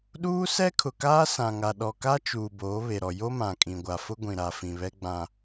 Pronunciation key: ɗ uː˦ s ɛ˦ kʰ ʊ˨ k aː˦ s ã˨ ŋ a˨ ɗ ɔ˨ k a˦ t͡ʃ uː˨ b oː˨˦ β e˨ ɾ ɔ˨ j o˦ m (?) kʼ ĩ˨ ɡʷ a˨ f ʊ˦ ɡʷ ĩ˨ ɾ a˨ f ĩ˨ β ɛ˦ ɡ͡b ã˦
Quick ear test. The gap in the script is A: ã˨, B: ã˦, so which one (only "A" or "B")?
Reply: A